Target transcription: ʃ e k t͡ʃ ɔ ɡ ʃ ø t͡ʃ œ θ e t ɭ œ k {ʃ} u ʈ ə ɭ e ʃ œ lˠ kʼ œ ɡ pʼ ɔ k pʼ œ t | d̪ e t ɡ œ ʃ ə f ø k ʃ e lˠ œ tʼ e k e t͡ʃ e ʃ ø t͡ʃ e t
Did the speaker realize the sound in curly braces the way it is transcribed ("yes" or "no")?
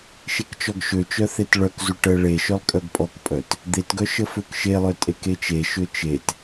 no